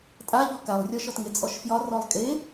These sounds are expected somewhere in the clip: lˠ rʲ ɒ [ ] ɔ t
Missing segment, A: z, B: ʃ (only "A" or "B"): B